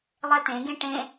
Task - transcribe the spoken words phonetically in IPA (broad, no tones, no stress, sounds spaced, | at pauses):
lˠ ɛ t̪ ẽ ɡ ẽ ʈ ẽ